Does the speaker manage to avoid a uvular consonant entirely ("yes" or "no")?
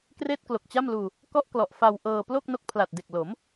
yes